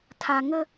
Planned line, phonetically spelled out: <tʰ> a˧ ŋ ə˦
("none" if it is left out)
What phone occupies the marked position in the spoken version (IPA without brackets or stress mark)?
tʰ